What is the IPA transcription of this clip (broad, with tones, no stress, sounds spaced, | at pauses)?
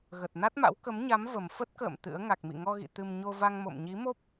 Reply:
ɣ ə˨˩ t̚ n a˦˥ t̚ m a̰˧˥ w k ə˨˦ m ɲ a˨˦ m v ə˨˩ m f ə˦˥ t̚ k ə̰ː˧˨ m t̪ ɨ̰˧˥ ə̯ ŋ a˨˩ k̚ m ḭ˧˨ ŋ ɔ˧ ɣ ḭ˧˨ t̪ ɨ˧ m ɲ o˧ v a˧ ŋ m o̰˧˨ m ɲ i˨˦ m o˦˥ p̚